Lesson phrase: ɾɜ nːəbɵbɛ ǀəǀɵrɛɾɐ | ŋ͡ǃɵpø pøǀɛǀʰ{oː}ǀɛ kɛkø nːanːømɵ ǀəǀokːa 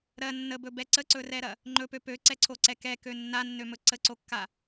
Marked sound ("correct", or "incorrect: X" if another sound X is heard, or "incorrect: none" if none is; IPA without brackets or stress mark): incorrect: o